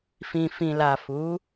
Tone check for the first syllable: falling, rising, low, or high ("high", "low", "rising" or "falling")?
low